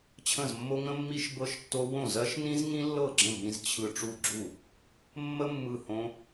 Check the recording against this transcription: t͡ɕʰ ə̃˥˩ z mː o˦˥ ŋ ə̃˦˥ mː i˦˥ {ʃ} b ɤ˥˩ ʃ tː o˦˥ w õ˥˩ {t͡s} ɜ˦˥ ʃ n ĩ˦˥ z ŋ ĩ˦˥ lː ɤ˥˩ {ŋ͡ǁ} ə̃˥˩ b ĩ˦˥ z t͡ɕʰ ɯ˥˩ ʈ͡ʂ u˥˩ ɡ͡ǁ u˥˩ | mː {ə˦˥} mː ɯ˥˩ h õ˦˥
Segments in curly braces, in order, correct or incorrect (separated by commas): correct, incorrect, incorrect, correct